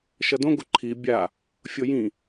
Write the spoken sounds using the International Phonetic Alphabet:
ʃʌdõɡo ǃʰi bʲa | fʲojĩ

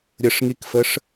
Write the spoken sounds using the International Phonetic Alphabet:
ɾʲəʂŋikfəʂ

